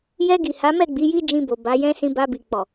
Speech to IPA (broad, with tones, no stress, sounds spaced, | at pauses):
j ɛ˧ ɡ i˨ h a˨˦ m ɛ˦˨ ɡ͡b i˨˦ j i˦ d͡ʒ ĩ˧ b o˨ b a˨˦ j ɛ̃˦ s ĩ˧ b a˧ b i˨ k͡p ɔ˨